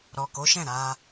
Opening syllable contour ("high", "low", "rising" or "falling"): low